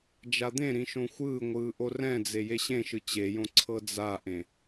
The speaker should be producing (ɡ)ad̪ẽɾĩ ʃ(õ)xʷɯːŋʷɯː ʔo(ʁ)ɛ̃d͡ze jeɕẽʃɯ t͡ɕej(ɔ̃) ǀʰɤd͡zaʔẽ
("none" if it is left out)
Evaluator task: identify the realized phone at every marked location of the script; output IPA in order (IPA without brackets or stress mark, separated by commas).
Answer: d͡ʒ, õ, r, õ